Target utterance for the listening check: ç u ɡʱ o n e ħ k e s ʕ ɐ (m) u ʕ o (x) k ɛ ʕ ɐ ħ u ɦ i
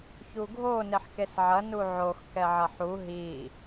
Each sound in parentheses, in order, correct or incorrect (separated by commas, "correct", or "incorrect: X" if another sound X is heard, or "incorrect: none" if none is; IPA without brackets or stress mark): incorrect: n, correct